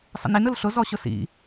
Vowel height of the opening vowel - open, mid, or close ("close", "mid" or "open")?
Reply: mid